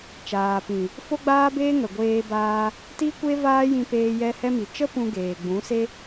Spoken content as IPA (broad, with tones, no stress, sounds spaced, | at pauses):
t͡ʃ aː˨ p ĩ˨ | f o˦ ɡ͡b aː˦ b eː˦ ŋ ə˨ ɡʷ eː˧ b aː˧ | t i˦ kʷ e˦ v aː˦ j ĩ˧ p eː˧ j ɛ˧ h ɛ˧ m i˨ t͡ʃ ə˦ p ũ˧ ɡ eː˨ ɡ͡b ũ˨˦ s e˦